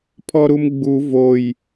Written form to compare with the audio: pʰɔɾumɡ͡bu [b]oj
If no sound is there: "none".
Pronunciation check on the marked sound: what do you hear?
v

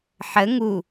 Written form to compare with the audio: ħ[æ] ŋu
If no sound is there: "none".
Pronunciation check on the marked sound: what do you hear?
ə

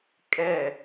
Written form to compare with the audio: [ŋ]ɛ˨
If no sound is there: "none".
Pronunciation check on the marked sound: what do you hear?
kʼ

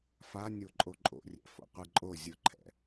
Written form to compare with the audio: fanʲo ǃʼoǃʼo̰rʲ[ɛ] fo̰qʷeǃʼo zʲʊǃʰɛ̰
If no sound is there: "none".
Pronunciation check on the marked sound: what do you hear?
ɛ̰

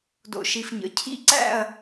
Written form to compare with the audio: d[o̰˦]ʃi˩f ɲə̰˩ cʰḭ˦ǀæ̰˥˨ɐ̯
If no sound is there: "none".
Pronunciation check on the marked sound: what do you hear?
o̰˩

